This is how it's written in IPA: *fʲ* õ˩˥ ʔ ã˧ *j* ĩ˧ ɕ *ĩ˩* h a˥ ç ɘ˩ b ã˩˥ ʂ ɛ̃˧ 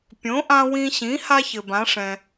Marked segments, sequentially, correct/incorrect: incorrect, incorrect, incorrect

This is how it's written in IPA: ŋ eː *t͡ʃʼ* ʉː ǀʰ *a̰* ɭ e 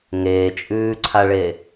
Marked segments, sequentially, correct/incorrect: correct, incorrect

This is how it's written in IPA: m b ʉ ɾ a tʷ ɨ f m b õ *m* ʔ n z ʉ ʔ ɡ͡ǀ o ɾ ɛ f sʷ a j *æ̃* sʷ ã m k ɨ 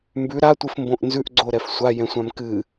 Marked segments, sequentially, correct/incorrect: incorrect, incorrect

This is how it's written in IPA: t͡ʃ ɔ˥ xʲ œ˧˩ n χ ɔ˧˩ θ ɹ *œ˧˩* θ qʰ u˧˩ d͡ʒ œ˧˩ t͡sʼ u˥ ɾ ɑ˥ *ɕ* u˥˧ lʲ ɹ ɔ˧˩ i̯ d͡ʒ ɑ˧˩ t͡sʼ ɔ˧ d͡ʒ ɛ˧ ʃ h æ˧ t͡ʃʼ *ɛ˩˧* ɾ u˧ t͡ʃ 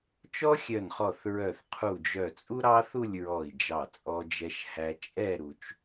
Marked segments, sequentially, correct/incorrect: correct, incorrect, incorrect

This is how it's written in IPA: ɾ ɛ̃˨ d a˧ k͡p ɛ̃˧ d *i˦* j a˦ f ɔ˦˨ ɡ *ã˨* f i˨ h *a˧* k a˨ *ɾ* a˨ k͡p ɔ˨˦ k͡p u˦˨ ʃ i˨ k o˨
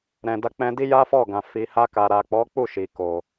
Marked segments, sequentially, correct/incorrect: correct, correct, correct, correct

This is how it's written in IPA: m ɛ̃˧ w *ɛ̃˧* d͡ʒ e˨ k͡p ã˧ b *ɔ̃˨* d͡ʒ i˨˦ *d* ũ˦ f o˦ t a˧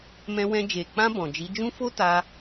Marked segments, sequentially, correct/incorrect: correct, correct, incorrect

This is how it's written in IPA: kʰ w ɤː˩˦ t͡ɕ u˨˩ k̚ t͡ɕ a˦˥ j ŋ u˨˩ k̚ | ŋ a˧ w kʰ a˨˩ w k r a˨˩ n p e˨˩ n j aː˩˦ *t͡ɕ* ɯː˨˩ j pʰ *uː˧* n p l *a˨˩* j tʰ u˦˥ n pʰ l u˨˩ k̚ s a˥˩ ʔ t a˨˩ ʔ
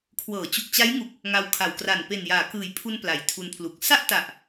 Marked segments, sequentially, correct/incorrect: incorrect, incorrect, correct

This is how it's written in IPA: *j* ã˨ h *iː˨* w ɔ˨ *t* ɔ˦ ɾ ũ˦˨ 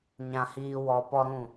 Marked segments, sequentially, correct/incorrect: incorrect, correct, incorrect

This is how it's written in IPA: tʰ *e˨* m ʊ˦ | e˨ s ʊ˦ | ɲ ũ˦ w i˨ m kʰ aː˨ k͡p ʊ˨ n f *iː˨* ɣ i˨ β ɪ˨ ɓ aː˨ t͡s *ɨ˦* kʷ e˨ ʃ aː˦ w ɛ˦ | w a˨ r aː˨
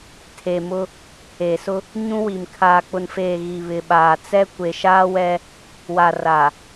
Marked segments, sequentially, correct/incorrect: correct, incorrect, incorrect

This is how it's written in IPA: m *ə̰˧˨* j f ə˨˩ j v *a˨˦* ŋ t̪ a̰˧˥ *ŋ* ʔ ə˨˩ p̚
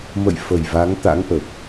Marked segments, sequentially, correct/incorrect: correct, correct, correct

